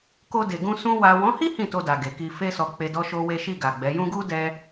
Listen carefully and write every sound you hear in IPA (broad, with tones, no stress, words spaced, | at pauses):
ko˧de˨ɡũ˧ sũ˧ wa˨wɔ̃˨˦hi˦ hĩ˦˨to˧ da˨ɡe˨ki˧ fe˧sɔ˨ k͡pe˧dɔ˦ʃo˦we˦ ʃi˦˨ɡa˨ɡ͡bɛ˨˦ jũ˧ɡu˦ dɛ˦